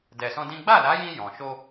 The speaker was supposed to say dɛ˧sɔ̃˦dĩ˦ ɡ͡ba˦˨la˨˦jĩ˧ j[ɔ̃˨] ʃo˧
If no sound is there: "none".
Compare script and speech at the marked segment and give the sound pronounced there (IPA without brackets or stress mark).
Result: ɔ̃˨